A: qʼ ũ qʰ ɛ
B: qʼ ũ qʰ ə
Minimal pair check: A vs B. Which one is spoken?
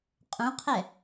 A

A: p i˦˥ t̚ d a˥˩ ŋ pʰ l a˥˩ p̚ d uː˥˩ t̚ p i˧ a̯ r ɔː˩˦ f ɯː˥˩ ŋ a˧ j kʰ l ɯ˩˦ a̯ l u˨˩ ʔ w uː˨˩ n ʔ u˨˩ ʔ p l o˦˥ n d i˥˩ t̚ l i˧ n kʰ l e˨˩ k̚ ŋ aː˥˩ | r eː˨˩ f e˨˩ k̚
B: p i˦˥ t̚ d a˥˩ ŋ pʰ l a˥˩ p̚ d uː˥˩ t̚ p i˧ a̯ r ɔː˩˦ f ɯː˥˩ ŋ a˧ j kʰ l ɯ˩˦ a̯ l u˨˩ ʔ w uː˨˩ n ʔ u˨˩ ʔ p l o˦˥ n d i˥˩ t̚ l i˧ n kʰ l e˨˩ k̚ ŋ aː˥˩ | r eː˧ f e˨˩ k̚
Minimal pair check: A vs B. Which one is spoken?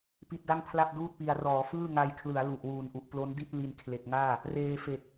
B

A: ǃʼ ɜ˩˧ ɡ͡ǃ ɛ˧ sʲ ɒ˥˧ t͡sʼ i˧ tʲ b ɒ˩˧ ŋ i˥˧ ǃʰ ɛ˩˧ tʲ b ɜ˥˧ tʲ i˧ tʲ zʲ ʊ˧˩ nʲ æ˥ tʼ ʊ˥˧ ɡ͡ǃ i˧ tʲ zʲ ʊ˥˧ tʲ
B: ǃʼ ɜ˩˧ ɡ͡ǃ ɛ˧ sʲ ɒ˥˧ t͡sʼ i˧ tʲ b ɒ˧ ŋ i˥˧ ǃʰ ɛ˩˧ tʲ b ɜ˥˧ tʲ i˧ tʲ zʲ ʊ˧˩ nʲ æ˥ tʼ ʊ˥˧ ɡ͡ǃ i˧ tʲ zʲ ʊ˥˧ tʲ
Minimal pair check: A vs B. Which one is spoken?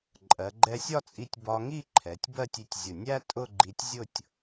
B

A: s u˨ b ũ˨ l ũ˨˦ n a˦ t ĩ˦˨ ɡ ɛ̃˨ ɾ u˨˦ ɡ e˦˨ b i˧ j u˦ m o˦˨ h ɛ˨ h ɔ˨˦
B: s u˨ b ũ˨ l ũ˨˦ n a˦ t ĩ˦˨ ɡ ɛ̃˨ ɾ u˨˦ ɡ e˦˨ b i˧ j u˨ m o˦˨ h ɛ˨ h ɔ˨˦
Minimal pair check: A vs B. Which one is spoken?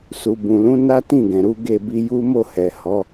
A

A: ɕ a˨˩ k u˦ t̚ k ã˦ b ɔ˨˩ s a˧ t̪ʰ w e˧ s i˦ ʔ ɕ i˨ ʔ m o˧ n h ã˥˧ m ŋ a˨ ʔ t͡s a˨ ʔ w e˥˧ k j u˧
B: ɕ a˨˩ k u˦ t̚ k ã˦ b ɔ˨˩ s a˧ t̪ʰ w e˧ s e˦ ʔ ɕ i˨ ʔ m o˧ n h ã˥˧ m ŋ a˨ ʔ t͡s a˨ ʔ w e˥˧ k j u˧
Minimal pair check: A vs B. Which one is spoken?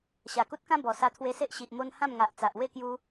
B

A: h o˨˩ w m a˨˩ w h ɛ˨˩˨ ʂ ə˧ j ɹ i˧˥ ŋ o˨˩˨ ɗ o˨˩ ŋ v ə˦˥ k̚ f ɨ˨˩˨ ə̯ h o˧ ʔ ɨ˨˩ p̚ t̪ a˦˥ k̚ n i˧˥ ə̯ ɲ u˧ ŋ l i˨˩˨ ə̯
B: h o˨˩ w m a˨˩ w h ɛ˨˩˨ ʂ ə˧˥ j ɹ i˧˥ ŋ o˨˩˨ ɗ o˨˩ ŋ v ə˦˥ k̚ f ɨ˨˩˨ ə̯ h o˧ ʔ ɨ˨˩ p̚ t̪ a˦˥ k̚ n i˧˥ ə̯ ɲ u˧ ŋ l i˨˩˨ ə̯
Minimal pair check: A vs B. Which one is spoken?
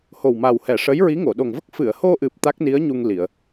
B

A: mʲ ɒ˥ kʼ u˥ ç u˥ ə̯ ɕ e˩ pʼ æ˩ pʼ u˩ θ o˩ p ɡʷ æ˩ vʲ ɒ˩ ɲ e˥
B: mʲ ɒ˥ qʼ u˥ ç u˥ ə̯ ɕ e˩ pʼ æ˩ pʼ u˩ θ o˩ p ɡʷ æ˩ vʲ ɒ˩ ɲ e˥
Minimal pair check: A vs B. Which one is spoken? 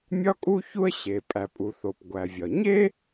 A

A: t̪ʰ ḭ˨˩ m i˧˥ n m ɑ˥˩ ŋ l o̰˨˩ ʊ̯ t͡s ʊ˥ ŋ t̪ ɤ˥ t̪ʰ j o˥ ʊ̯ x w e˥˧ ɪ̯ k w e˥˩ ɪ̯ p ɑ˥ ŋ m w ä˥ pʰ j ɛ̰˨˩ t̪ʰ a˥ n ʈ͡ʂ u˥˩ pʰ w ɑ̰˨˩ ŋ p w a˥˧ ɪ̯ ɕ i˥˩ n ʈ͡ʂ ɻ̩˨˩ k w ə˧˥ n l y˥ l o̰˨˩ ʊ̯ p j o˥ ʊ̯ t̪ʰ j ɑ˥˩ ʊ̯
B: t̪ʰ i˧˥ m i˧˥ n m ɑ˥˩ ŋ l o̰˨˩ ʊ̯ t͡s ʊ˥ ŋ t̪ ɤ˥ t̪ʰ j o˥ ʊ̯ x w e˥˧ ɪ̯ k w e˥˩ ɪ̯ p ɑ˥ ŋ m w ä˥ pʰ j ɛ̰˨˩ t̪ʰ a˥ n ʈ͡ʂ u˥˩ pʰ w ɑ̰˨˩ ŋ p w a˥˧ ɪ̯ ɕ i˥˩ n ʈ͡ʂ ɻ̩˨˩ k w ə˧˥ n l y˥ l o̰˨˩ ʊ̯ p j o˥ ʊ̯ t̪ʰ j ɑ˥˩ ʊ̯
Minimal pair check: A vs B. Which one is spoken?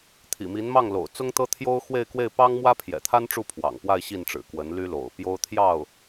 A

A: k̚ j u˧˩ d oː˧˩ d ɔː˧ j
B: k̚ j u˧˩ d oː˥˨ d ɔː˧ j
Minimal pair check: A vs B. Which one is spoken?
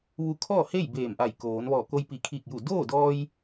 B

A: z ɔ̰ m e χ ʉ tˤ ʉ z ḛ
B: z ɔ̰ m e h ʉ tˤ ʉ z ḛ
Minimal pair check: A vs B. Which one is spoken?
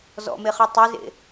A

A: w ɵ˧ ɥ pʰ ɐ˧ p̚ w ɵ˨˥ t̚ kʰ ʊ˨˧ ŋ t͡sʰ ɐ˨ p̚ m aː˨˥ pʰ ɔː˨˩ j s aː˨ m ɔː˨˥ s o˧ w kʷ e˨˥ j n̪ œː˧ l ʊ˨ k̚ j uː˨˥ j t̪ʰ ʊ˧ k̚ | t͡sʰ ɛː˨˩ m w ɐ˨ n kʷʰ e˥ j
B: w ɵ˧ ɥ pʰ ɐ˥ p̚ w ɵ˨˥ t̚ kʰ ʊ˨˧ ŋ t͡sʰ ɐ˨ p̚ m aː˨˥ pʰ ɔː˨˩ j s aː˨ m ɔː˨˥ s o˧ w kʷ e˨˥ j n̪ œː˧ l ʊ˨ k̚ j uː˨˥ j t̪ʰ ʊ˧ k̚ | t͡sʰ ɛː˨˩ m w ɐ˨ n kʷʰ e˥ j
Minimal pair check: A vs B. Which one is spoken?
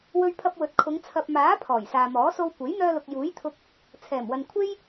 A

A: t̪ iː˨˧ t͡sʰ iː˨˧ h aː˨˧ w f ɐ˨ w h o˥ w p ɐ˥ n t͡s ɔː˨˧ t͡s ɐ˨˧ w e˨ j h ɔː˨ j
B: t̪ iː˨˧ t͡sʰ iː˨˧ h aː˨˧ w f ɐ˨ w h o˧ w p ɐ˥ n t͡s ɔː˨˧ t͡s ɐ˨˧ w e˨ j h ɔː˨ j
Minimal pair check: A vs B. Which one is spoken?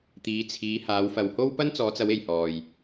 A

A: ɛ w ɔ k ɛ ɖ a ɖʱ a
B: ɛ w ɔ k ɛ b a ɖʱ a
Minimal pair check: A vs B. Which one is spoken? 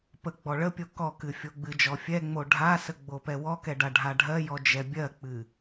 A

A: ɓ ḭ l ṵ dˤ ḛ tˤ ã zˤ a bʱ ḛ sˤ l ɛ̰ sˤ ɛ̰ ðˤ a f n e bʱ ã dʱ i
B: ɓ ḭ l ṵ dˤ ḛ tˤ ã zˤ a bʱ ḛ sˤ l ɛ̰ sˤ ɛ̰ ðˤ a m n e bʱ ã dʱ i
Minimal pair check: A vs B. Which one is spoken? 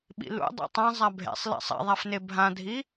A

